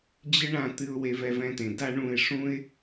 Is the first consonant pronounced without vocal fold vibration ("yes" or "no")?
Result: no